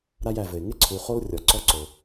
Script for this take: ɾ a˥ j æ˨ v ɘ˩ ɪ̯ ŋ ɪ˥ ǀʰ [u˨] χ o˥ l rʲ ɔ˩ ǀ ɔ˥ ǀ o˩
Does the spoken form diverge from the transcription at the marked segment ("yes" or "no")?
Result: no